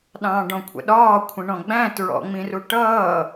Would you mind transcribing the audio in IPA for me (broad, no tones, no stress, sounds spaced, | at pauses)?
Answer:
ɗ ɑ̃ː ɖ ɔ̃ kʷʰ ə̰ ɗ ɒː kʷʰ ə̃ ɳ ɔ̃ ɡ͡b æ̃ t ɹ ɔ̰ ŋ͡m ĩ r u ʈ ʌː